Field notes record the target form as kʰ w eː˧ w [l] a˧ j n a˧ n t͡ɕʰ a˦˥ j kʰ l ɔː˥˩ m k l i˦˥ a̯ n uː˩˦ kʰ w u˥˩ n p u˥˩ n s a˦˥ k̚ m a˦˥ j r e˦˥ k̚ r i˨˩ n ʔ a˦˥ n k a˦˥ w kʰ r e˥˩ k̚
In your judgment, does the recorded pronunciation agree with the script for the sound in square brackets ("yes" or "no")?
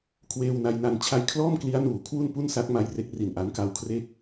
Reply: no